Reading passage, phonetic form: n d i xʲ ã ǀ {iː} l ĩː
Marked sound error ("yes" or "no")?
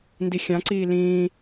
no